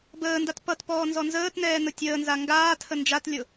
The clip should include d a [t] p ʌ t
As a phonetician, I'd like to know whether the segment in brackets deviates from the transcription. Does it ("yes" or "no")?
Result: no